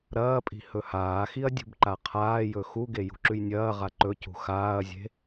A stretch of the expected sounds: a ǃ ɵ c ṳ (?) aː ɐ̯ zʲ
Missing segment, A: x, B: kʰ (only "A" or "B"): A